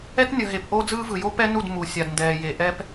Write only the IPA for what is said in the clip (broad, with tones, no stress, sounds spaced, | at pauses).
ɛ˦ t nʲ ʌ˨ ɦ e˨ p ʔ o˦ d͡z ɯː˦ v ɯ˨ j o˦ p ɛ˦ n u˦˨ d m u˨ sʲ a˨ d n d ɛː˨ j e˨ ʔ ɛ˦ p